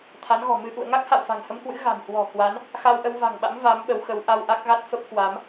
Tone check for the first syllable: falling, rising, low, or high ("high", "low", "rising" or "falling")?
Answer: rising